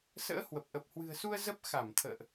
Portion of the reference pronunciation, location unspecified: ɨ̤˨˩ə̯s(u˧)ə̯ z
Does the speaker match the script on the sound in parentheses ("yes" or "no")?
yes